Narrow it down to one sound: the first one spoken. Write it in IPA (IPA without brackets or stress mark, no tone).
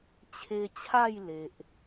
t͡ɕʰ